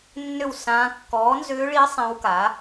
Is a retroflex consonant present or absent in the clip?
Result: present